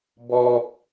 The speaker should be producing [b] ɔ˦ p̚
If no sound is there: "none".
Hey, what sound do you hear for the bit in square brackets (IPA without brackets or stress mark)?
b